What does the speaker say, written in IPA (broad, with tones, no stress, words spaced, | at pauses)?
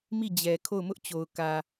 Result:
mi˦˨d͡ʑɛ˨ kʰo˦˨ʊ̯mʊ˦ʔt͡ɕo˨ʊ̯ kä˨